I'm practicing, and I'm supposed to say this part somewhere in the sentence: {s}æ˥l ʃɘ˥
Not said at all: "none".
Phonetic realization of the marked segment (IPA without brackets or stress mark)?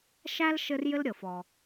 ʃ